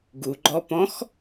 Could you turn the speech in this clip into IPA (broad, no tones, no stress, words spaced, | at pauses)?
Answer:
ɡuɡ͡ǃɔpɔ̃x